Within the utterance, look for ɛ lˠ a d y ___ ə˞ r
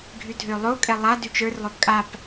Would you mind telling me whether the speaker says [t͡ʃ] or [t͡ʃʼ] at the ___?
t͡ʃ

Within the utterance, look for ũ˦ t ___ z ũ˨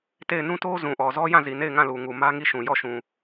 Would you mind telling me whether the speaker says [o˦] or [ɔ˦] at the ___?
o˦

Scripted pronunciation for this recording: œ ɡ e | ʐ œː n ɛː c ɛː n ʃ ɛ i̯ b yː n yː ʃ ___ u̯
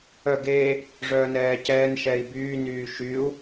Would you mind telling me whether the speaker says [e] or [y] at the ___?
y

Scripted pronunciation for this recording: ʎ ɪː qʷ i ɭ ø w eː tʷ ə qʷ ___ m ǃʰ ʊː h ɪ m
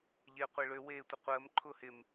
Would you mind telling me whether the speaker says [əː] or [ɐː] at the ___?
əː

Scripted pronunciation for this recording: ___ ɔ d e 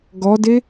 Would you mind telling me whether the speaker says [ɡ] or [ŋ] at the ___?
ɡ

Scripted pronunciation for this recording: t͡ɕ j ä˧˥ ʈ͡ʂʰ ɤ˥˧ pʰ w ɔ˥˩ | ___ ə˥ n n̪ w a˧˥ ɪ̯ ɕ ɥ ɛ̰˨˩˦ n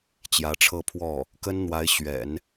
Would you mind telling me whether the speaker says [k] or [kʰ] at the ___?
k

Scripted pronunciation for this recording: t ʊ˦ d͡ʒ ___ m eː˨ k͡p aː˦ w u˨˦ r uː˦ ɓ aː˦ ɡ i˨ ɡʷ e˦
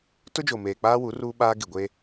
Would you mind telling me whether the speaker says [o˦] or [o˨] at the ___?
o˨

